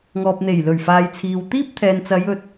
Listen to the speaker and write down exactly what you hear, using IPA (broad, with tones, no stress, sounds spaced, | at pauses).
ŋ ɔː˨ p̚ n̪ e˨˩ j l ɵ˨˩ ɥ f aː˨ j t͡sʰ iː˨ w t̪ iː˥ p̚ t̪ʰ ɛː˨ n t͡s ɐ˨˧ j ɵ˨ t̚